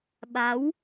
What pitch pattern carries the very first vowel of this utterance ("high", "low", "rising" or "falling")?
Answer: rising